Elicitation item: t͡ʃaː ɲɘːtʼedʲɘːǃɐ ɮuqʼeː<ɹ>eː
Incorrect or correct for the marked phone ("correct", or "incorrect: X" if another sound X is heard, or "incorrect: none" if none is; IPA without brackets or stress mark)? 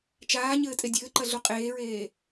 correct